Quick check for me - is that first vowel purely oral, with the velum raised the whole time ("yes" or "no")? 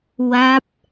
yes